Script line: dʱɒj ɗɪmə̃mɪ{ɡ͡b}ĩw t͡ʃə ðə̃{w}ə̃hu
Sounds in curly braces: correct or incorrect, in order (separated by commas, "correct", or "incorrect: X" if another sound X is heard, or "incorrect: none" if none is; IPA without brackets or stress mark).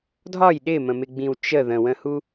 correct, correct